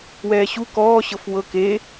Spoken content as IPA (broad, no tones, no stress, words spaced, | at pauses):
wɛːɕu kɔː ɕɤfwɤ ke